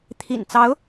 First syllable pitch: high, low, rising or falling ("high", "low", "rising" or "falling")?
low